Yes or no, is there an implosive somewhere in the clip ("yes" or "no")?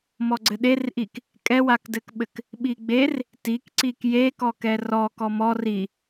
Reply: yes